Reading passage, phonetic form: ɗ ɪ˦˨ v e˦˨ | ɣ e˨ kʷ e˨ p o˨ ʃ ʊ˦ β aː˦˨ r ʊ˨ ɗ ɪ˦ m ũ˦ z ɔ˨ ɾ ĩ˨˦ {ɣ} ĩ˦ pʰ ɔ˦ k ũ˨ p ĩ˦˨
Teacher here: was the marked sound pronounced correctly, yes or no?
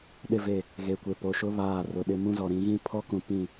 yes